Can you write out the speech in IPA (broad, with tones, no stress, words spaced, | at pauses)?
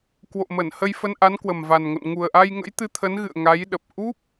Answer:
kwo̰˧˨mə˧˩nhə˧jfə˧n ʔa˨˦nkwə˨˩mva˨˩nŋo̰˧˨n ŋu˨˩ə̯ʔa˧jŋə̰˧˥j t̪ɨ˨˦t̪ʰə˨˦nɣɨ̰˧˨ə̯ ŋa˨˦jɗə˨˩p̚ ʔu˦˥p̚